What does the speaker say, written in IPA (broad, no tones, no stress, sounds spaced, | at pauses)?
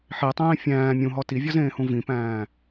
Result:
ħ i tˤ ẽː fʲ æ̃ː mʲ ũ ɦ ɔ t i vʲ ɔ z ẽː h ũ v ĩ p æ̃ː